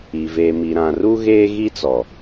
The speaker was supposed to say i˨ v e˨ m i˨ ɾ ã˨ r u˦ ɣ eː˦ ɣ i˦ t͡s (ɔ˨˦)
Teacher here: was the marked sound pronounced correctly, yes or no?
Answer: no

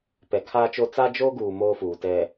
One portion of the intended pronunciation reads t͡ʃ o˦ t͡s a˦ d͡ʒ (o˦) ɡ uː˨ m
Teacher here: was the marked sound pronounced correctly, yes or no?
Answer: yes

